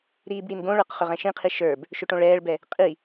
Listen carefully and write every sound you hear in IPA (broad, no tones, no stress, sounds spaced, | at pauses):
ɾ iː b ɽ i n ɡ õ ɭ ə˞ q χ ʏ ʁ ɛ̃ ʃ ĩ qʰ i ʃ ə˞ b | ʃ ʏ ʈ õ ɭ ɛː ɭ b ɛ | qʼ i